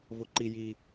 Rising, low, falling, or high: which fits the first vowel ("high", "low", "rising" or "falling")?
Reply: high